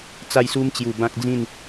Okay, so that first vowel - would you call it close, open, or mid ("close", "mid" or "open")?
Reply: open